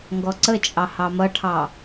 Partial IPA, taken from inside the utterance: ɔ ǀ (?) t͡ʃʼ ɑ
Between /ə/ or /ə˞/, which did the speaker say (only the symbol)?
ə